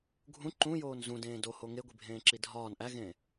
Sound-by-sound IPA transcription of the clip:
ɡʱũ ǃũjoːn zũdẽː doho ŋeɡʷibʱẽːǁi dʱɒːn ʔæɣẽː

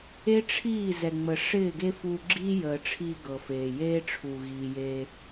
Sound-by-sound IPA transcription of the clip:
e˦ʈ͡ʂʰiː˦˨zɛ˨ ŋ͡mə˨ʂɪː˦˨ɡe˦fu˧ ɡ͡ǁiː˦jəː˨ʈ͡ʂʰiː˧ ɡɤ˨feː˨jeː˦ ʈ͡ʂʰu˨ɣiː˨jeː˧

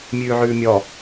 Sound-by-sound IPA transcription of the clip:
mʲʉːʕʉːmʲɔ

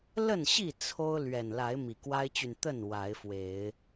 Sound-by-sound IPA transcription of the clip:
lə˥˨nɕi˥˨ t͡sʰo˦ʊ̯ lɥɛ˨˩nla˨˦ɪ̯ mi˨˩kwa˦ɪ̯t͡ɕy˨n t̪ə˥˨n wa˨˦ɪ̯fwe˨˦ɪ̯

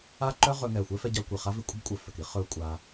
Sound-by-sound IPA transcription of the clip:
a˦ǃœ˦ ʁɵ˧ŋɛ˨ xʷɛ˦fɛ˧ɟa˧ kʷi˨χa˦ vi˧kʷʼə˦bkʷʼœ˨ fœ˨ki˦ χɵ˧ kʷʼa˧

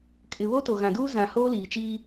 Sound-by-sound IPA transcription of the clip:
kʼɪ˨βo˦ to˨ɣã˨duː˦ zã˨ hoː˦liː˨t͡ʃiː˦

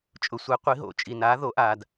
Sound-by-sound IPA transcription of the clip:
t͡ʃʼʊ˩sʷɛ˩˧qʷi˩˧ɦo̰˩˧ t͡ʃʼi˩naː˩˧ ðo˩˧ ʔaː˩d

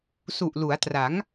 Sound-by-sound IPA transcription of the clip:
su˨˩ʔlu˩˦a̯tra˩˦ŋ

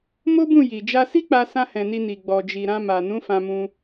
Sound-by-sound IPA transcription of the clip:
mo˦bũ˦˨ ji˨ d͡ʒa˧si˦ k͡pa˧sã˧hɛ̃˨ ni˧ni˨ɡ͡bɔ˨ d͡ʒi˨ɾã˧ma˨ nũ˨˦fã˧mũ˧

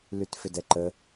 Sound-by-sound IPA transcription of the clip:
lytfʏdɛǃə

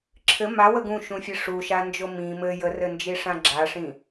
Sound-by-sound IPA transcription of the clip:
ǁʰɘ mawə ɡũʃũfʲɘ ʂuʃand͡ʒo mĩ mɘ jərɘnd͡ʒiʂã ɡ͡ǁaʂĩ

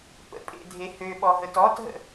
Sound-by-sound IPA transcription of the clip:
pə̰pʼḛdʱe høɓɔɦət ɔtɦə̰

